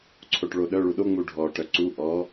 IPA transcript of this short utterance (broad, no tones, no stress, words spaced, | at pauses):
ǀʰoʈɭoɗœ ɭuɗo ŋ͡muɖʱɔ ʈœǀu ʔɔ